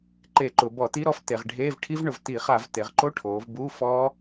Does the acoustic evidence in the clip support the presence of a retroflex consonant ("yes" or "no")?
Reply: yes